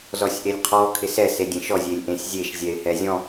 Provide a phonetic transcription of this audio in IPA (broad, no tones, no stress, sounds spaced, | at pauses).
z ɔ sʲ ʔ e lʲ qʰ ɔ kʰ ɪ s ɛ s e dʲ ẽ ʃ ɔ zʲ e lʲ ʔ ẽ sʲ zʲ e ʃ zʲ ɛ ɪ̯ h ɛ zʲ ɔ̃